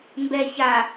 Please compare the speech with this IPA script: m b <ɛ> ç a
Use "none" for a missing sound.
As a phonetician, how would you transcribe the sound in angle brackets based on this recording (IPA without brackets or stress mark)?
ɛ